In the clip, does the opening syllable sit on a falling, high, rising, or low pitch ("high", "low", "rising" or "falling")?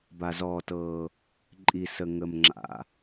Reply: low